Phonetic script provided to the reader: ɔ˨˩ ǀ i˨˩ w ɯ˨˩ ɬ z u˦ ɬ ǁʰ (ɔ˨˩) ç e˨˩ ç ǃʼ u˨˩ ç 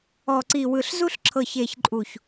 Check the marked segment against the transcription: incorrect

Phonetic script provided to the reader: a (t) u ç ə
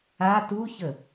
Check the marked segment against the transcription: correct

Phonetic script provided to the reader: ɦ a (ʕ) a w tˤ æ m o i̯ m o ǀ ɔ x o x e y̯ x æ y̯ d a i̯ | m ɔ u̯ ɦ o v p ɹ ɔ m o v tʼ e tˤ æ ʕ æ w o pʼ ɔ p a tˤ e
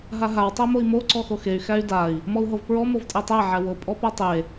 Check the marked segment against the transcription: incorrect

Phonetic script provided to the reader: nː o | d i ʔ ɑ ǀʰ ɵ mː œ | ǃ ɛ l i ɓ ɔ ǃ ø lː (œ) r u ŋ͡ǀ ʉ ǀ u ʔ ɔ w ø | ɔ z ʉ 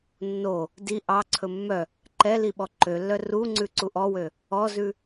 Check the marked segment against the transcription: correct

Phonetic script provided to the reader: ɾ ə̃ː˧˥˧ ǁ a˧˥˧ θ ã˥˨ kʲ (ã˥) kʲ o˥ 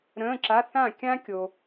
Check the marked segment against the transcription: correct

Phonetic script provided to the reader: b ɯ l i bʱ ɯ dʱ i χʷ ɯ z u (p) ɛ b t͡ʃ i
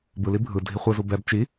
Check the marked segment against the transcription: incorrect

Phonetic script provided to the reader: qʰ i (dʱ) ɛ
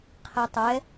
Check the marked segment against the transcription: incorrect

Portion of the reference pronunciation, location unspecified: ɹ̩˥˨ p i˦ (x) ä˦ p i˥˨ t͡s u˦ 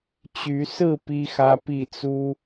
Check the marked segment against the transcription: correct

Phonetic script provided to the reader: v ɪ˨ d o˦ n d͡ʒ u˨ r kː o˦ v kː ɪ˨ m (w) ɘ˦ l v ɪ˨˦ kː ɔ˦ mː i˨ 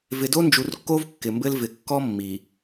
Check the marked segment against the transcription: incorrect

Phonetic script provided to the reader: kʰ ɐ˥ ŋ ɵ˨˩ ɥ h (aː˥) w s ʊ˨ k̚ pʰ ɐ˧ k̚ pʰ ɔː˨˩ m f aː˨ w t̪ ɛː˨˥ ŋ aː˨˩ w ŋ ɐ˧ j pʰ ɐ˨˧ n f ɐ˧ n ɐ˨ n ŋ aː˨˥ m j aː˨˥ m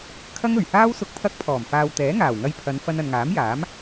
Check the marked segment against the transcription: correct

